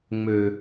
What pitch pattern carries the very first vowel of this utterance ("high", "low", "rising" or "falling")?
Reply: low